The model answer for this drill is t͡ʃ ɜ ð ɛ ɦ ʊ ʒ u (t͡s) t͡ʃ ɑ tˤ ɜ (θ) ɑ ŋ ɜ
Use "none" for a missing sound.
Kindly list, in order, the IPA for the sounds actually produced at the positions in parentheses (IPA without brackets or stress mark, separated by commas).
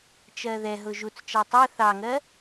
t͡s, θ